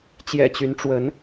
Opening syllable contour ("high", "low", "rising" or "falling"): low